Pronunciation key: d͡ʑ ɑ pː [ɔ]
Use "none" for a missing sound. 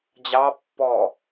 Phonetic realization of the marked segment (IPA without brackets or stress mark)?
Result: ɔ